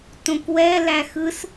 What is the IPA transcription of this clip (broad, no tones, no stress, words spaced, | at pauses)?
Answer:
tõkwɛlæ xɯs